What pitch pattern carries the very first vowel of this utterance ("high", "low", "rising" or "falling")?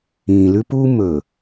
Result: low